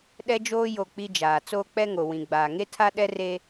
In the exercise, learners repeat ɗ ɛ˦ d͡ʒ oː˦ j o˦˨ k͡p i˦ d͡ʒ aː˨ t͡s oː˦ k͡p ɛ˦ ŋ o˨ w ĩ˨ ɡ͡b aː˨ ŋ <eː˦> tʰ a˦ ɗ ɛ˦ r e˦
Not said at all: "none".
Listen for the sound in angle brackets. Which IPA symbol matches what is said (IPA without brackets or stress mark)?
e˦